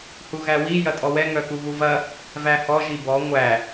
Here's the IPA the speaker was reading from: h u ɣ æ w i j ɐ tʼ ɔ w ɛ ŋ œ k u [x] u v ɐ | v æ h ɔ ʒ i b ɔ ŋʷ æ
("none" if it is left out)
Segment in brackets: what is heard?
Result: ɣ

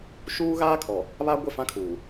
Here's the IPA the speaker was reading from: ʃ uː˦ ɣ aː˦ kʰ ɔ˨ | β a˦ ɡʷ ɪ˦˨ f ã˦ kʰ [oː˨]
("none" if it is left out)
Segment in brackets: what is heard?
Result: uː˨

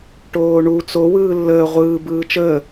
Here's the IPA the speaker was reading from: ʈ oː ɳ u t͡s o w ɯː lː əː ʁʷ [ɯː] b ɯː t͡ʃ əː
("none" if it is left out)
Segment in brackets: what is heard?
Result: ɯː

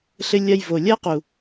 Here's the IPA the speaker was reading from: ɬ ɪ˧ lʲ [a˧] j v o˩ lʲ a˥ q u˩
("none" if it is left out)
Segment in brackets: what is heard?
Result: a˧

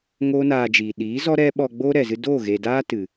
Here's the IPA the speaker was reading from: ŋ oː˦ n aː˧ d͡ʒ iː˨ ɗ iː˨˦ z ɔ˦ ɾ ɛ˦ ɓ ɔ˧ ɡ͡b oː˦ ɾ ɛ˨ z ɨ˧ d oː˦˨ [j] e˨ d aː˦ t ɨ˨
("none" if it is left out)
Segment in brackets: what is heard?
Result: ɣ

